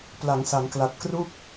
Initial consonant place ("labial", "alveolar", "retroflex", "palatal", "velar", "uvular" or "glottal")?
labial